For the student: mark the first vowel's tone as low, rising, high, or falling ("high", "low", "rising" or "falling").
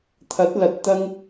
rising